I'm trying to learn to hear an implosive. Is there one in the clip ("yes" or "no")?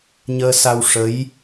no